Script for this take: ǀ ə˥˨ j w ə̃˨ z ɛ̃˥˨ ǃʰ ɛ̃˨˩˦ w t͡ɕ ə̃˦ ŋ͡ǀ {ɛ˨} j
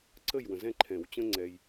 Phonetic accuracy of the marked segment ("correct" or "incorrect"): correct